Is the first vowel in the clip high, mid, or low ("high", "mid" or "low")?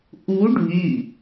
high